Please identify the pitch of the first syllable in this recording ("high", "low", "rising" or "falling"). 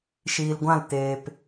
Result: low